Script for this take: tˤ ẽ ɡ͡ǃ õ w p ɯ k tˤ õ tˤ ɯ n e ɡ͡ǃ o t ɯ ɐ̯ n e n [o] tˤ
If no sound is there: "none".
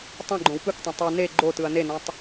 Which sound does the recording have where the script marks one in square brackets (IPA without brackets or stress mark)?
õ